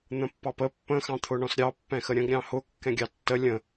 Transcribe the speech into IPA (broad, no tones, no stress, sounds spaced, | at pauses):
n̪ ə̃ pː ɑ p ə pː ə̃ x ɑ̃ t̪ʰ ʊ ɳ ɔ̃ s ɾʲ ɑ pː ɛ̃ x ə ɾʲ ə̃ ɡ ɾʲ ɑ̃ h ʊ kː ɛ̃ ɡʲ ɑ tː ə lʲ ə̃